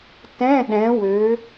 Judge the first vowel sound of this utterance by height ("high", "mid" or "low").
mid